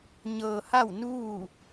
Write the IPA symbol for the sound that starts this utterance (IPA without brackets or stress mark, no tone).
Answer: ɲ